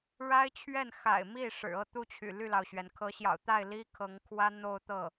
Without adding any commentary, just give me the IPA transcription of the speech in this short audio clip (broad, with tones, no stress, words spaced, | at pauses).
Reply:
ɻa˥ɪ̯t͡ɕʰɥɛ˥˩n xa̰˨˩ɪ̯mi˥˩ ʂɻ̩˨˩ɤ˥˧t̪u˥˩t͡ɕʰy̰˨˩ ly˥˩lɑ˩ʊ̯ɕɥɛ˩n kʰɤ˧˥ɕjɑ̰˨˩ʊ̯t̪a˥˩ɪ̯ li˥ kʰɤ˧˥ŋkʰwä˥ n̪o˥˧ʊ̯t̪ɤ˥˩